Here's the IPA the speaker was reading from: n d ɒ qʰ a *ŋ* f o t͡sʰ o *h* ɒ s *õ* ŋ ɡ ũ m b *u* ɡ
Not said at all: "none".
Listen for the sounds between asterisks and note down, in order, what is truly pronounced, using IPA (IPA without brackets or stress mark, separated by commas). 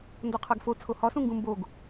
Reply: ɡ, h, ũ, o